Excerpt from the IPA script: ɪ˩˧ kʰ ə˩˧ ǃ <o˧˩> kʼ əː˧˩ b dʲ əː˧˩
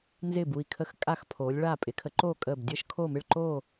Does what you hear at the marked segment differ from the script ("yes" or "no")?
yes